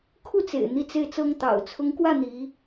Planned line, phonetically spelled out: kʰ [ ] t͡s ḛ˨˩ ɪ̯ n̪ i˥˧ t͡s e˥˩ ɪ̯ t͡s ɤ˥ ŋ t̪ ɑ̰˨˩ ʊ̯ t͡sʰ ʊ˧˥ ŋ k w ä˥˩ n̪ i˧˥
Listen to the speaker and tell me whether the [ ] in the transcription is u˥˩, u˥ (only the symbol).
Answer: u˥˩